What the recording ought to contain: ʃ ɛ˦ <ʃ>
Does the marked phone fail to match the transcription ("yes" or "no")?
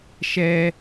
yes